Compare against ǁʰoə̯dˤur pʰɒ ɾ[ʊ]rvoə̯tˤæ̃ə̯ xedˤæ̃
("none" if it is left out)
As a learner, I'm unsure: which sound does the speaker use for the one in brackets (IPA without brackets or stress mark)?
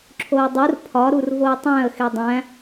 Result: u